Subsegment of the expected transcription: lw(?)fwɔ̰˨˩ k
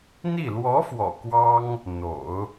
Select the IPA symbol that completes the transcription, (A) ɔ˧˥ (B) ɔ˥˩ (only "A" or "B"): A